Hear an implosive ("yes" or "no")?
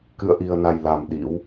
yes